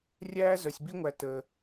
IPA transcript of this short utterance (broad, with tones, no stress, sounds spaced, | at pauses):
rʲ æː˦ z œ˧ sʲ b i˦ ŋʷ æ˧ t əː˧